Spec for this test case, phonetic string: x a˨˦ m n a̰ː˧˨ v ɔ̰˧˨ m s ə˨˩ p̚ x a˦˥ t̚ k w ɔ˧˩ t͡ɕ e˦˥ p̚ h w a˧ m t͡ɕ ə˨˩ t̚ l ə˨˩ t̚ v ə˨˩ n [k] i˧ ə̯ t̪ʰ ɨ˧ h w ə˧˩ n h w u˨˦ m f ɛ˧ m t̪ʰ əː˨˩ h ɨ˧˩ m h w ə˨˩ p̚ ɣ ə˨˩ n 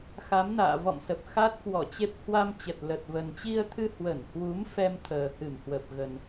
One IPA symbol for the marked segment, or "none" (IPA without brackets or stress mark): t͡ɕ